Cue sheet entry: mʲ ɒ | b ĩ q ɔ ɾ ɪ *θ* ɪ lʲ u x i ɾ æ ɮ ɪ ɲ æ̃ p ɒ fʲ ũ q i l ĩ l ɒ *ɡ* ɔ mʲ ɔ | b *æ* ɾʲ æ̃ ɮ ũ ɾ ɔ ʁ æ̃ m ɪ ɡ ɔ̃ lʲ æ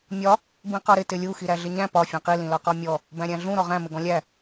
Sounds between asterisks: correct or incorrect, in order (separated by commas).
incorrect, incorrect, incorrect